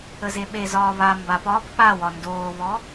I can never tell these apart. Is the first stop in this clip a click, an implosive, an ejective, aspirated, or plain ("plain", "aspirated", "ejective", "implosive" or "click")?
implosive